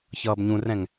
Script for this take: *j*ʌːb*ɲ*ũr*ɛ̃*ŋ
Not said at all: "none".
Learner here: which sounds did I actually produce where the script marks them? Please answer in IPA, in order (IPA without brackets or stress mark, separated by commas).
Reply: ç, ɲ, ɛ̃